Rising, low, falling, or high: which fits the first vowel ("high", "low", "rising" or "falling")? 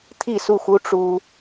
falling